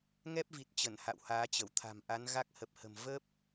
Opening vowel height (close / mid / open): mid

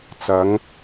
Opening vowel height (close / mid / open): open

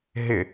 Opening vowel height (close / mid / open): close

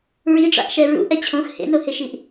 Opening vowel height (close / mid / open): close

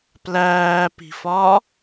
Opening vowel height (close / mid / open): open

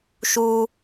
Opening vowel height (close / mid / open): close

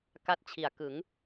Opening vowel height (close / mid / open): open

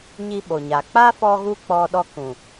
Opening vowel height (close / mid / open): close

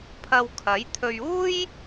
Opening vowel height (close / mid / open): open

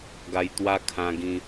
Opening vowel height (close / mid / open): open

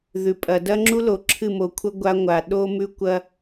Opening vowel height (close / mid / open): close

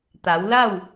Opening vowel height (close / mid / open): open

